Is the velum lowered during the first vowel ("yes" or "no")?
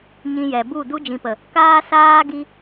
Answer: yes